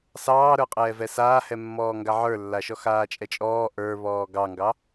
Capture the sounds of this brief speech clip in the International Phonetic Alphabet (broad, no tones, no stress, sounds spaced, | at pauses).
s ɑː ɾ ə˞ qʼ ɛː v ɛ s aː h ɛ mː ɔː ŋ ɡ a ʕ ə˞ lː a ʃ ɔ x aː t͡ʃʼ ɛ t͡ʃʼ ɔː ʔ ə˞ β ɔː ɡ ɑ ŋ ɡ ɑ